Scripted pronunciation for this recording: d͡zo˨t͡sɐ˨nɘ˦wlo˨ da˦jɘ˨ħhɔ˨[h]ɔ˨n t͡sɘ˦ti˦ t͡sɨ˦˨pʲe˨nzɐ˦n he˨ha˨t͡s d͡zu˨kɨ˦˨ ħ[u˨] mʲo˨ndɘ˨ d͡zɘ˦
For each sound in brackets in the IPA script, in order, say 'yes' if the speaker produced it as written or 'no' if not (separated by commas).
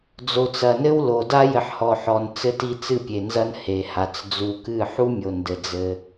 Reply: no, no